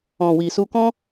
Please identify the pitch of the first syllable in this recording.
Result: low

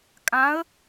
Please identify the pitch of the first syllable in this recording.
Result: rising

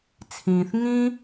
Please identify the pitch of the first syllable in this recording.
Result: low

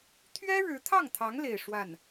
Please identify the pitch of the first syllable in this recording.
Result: high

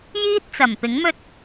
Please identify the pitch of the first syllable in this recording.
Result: high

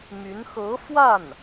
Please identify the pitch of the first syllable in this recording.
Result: rising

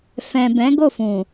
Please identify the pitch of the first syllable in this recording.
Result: low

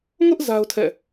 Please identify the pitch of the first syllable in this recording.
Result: high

